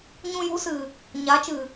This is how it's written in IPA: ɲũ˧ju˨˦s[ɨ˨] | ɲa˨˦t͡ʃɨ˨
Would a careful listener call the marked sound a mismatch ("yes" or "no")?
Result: no